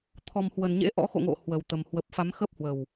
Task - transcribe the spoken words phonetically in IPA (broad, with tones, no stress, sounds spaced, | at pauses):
t̪ʰ ɔ˨˩ m h w ə˧˩ n ɲ ḛ˧˥ ʔ ɔ̰˧˥ x o̰˧˨ ŋ o̰˧˨ h w ə˧˩ w t̪ ə˨˩ m h w ə˨˩ p̚ f a˨˦ m x ə˦˥ p̚ h w ə˨˩ w